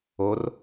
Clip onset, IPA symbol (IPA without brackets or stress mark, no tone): o